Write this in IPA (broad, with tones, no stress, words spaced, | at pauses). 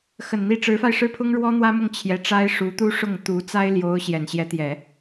xə˨˩nn̪i˧˥ ʈ͡ʂɻ̩˧˥fa˧ɪ̯ʂɻ̩˥˩pʰʊ˥ŋ ɻwɔ˥n̪wä˥mʊ˥˩ŋ t͡ɕʰjɛ˧˥ʈ͡ʂa˥ɪ̯ʂu˧˥t̪u˥ ʂʊ˥˩ŋt̪u˧˥ t͡sa˥ɪ̯ljo˧˥ʊ̯ ɕjɛ˨˩nɕjɛ˧˥t̪jɛ˨˩˦